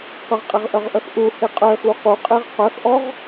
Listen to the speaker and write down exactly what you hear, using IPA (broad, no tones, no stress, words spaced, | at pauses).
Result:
qəʁqʼeʁʔœʁʔœx ʔuhe qʼœxu quqʼeʁ qœxʔɔʁ